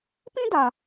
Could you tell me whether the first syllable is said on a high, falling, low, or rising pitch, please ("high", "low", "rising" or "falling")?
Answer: high